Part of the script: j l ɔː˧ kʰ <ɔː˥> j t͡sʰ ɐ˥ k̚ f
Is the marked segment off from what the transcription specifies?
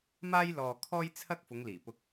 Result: no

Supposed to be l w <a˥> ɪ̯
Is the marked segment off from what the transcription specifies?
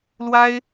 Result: no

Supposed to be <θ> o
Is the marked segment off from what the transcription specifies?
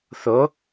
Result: no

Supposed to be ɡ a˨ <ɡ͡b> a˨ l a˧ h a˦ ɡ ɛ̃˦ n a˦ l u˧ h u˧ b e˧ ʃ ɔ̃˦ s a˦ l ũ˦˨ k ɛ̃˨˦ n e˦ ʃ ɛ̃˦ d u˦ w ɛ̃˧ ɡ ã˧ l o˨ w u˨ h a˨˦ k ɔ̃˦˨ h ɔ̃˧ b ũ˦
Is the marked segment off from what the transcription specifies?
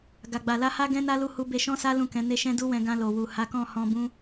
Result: no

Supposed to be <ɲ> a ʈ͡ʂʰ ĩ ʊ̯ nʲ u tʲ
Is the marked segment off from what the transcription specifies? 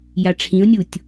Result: yes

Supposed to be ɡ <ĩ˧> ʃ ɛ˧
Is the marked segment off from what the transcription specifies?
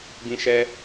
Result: no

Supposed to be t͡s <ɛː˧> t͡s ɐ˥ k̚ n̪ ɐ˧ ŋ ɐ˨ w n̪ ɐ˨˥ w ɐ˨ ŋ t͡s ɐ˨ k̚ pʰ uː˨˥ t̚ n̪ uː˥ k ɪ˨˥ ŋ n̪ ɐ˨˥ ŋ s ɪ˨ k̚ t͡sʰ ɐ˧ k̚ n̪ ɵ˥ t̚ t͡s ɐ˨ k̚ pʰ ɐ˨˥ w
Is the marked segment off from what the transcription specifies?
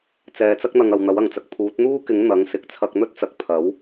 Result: no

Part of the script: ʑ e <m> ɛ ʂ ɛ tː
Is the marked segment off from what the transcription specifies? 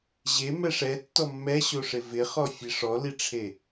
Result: no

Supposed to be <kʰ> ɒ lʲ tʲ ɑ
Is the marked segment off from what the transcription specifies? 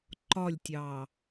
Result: yes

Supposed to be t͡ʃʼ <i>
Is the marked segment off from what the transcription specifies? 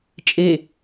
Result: yes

